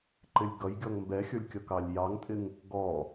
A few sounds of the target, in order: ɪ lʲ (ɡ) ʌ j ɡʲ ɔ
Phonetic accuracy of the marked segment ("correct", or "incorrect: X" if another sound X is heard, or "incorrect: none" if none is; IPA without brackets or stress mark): correct